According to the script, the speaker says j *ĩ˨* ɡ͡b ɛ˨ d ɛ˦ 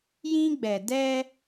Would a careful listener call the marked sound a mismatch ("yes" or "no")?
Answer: yes